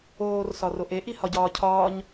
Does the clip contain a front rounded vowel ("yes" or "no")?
no